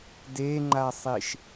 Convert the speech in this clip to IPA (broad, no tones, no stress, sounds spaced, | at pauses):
d e ŋ͡ǃ a sˤ i ʃ